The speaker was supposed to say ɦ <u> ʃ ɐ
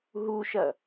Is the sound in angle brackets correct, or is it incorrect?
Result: correct